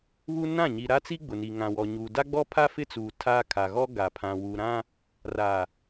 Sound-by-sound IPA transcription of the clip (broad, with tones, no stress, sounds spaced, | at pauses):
β u˦ n ã˦˨ ɲ i˨ ɾ a˦ t͡s i˦ ɡ͡b ʊ˨ n i˨ ŋ ã˨ w ɔ˨ ɲ uː˨ d a˦ ɡ͡b ɔ˦ pʰ a˦ f ɪ˦ t͡s uː˨ tʰ a˦ kʰ a˨ ɣ ɔ˦ ɡ a˨ pʰ ã˨ w u˨ ɾ ã˦ | r a˨